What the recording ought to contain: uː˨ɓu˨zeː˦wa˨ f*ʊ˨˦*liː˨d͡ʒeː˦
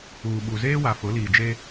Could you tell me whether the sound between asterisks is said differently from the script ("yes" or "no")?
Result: no